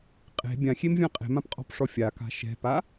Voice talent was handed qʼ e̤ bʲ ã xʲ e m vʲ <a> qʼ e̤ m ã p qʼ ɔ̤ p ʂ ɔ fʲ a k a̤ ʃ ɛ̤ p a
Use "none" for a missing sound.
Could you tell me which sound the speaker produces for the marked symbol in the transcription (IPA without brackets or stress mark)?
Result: ã